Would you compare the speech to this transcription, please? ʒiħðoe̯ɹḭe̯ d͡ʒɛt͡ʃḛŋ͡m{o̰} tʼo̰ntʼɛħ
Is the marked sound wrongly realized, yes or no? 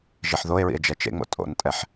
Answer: no